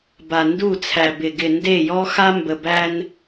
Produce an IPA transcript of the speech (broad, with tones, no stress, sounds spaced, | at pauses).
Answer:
b a˨ n d u˦˨ t͡sʰ æ˨ b ɪ˨ ɡ ɪ˨ n d e˦˨ j ɔ˦ x a˦ m b ə˨ b æ˦ n